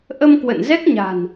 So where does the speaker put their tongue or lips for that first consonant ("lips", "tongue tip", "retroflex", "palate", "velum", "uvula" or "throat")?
throat